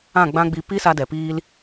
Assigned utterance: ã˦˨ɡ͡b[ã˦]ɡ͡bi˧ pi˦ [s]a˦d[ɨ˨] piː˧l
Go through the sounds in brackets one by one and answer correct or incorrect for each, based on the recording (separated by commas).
correct, correct, incorrect